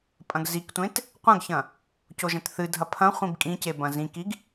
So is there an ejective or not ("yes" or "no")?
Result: yes